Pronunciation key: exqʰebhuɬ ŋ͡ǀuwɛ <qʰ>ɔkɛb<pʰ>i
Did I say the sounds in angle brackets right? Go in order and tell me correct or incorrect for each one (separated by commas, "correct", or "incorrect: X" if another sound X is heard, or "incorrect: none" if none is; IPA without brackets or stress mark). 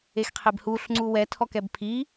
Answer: incorrect: tʰ, correct